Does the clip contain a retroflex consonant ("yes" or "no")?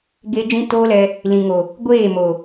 no